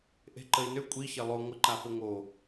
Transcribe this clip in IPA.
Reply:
ʔe̤ǃəi̯nʏ kʷʼi çelˠo ŋʷə ǃafoŋo

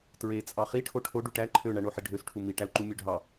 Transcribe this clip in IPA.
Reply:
tɹe t͡sʼɑχi ʈʰoʈʰo ɖuʈæ ǃʰøɳæ ɳoħiɖʱøsʈʰu miʈæu̯ǃu mʲøɖʱɑ

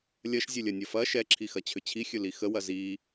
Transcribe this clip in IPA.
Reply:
lʲɐʃzʲɵlʲɐnʲɐ fɐ ʃɛǁʰixɐ t͡ɕʰʏt͡ɕʰixʲɵ lixəwɐ zi

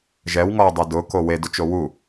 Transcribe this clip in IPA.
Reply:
ʒɛwŋɔwdˤɛ dʊko wedʊt͡ʃo wu

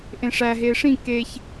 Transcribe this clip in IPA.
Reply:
ʔẽʂæ ɦeʂĩ keç

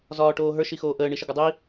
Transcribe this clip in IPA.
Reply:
zɒːʈoːɦə˞ ʃixoːʔəː ɳiʃəɡɒdˤi

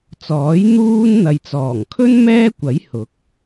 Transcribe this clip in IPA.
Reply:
t͡sɔː˨˥j n̪uː˥n n̪ɐ˨jt͡sɔː˨˩ŋkʰɵ˥n mɛː˥kʷɐ˨˥j hʊ˨˥k̚

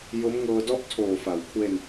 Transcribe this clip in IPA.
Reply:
jo˦˥mŋɤː˧dɔ˥˩ʔ tʰoː˨˩fa˩˦wkʰwe˧n

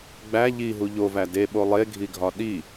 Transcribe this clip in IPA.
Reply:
ɡ͡bæ ʎiɦu ʎovæ deɓo lˠeɡʱiɡʱɒ ɗi

